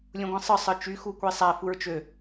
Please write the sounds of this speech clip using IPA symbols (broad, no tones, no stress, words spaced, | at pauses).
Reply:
lʲũɡʷĩsˤɯ sˤɯt͡ʃy xukʷisˤæ fuɹt͡ʃø